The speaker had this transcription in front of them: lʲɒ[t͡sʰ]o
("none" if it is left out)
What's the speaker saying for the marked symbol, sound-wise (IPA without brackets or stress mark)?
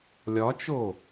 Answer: t͡ʃ